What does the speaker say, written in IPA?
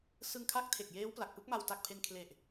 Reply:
s ɯ˧ ŋ kʰ a˦˥ k̚ tʰ e˨˩ k̚ j eː˦˥ w p l a˨˩ k̚ p ɯ˦˥ k̚ m a˧ w t a˨˩ k̚ pʰ e˧ n kʰ l e˨˩ ʔ

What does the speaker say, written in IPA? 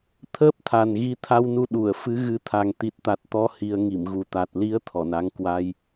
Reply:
t̪ʰ əː˦˥ p̚ t̪ʰ a˨˩ n ɣ i˨˦ t̪ʰ a˧ w n u˧ ɗ u˧˩ ə̯ f ɨ˨˦ ɣ ɨ˨˦ t̪ʰ a˨˩ ŋ t̪ i˨˩ t̚ t̪ a˨˩ t̚ t̪ ɔ˧ h i˧ ə̯ ŋ i˧˩ m ɣ u˨˩ t̪ a˨˩ t̚ l i˨˦ ə̯ t̪ʰ ɔ˧˩ n a˨˦ ŋ k w a˧ j

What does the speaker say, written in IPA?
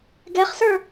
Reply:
ɡ ɛ χ s ə˞

